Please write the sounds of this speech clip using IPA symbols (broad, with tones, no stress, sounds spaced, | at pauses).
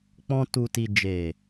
k͡p ɔ̃˧ t u˨ t i˨ d͡ʒ e˨